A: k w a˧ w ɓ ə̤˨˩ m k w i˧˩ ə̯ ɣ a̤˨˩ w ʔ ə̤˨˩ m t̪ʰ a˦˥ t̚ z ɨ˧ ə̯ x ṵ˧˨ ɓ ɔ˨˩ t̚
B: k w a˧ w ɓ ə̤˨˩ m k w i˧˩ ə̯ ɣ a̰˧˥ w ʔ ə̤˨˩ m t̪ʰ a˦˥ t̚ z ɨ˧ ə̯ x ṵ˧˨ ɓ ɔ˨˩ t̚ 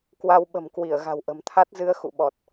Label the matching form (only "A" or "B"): A